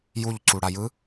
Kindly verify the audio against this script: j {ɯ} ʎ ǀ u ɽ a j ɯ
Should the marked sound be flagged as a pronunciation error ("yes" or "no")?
yes